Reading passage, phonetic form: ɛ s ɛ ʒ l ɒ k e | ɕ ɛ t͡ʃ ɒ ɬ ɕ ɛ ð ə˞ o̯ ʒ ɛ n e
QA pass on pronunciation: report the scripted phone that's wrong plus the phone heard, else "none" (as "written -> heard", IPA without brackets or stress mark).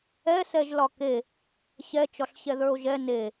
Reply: none